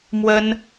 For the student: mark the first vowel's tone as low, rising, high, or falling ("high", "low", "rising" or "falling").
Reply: high